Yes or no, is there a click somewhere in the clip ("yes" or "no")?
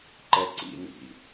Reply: yes